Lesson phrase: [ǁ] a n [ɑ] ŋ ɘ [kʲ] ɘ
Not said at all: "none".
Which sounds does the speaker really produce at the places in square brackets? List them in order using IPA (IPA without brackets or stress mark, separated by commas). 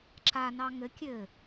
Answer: ǁ, ɑ, kʲ